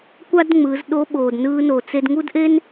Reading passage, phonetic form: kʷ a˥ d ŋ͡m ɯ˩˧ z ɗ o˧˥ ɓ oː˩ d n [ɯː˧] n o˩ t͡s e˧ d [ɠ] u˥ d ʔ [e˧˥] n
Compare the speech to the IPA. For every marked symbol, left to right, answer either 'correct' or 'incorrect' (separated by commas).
correct, incorrect, incorrect